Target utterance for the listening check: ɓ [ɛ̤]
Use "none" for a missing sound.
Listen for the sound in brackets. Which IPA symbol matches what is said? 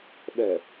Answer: ɛ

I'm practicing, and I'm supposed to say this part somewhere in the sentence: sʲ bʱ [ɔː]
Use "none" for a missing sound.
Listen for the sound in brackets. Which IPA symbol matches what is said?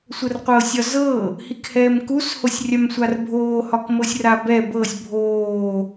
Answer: oː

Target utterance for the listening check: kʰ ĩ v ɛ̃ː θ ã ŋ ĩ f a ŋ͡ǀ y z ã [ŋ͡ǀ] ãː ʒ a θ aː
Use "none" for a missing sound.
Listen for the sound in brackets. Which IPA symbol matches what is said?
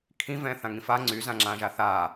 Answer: ŋ͡ǁ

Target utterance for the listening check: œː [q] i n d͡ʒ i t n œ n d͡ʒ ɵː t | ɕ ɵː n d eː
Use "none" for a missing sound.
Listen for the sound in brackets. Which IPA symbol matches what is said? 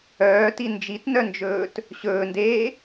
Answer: t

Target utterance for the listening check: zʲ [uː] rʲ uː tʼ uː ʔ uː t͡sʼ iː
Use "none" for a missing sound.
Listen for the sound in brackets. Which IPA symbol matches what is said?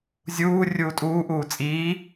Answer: uː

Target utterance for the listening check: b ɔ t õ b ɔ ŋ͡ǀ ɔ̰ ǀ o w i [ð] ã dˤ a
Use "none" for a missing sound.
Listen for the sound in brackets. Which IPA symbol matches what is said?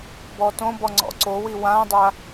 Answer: w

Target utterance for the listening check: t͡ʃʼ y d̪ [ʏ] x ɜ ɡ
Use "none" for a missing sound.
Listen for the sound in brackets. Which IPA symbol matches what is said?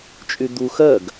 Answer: u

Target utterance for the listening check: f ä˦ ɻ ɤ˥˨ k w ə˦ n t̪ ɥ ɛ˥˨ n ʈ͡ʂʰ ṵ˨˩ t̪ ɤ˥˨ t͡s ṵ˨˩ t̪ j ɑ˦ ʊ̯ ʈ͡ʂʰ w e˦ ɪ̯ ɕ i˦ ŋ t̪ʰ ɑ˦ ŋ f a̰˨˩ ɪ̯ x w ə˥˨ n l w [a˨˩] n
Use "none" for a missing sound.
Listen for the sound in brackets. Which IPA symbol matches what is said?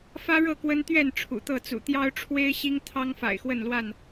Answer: a˥˨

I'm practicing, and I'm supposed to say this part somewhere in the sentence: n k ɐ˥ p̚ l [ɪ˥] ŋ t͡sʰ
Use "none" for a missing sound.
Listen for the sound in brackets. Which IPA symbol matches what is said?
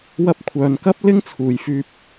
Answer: ɪ˥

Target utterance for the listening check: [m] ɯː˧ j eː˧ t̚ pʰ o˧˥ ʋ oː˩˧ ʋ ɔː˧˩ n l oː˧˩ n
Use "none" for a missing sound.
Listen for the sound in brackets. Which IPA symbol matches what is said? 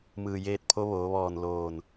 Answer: m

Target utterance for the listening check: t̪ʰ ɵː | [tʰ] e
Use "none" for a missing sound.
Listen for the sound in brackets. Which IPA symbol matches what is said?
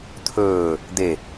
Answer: d̪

